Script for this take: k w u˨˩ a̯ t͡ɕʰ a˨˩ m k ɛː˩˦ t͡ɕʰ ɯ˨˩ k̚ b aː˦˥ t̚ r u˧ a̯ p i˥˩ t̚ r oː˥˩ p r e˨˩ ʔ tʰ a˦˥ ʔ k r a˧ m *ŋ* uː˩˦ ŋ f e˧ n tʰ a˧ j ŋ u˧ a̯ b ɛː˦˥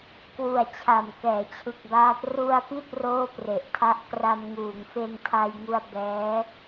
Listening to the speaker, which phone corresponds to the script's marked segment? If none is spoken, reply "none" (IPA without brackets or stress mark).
ŋ